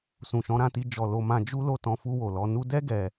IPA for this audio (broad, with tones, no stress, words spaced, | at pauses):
sũ˨ʃɔ̃˨˦ɾã˧ti˧ d͡ʒɔ˨ lo˧mã˧ d͡ʒu˦lo˦˨ tɔ̃˧fu˧wo˨lɔ˧ nu˧dɛ˦ ɡɛ˧